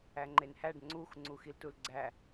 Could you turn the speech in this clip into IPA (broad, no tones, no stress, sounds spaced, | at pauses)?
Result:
æ ŋ͡ǃ e n h æ ɖ ŋ͡ǀ u x ŋ͡ǀ u x i l t u l ɡ͡ǀ æ